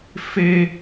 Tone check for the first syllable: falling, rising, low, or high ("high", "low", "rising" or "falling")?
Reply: high